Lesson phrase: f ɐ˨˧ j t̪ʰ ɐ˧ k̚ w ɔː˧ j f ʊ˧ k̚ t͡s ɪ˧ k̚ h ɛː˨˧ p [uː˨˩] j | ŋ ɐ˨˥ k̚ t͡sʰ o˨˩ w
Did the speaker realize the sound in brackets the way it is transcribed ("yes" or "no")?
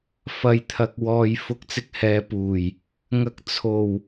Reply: yes